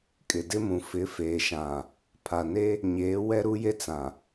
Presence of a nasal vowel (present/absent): present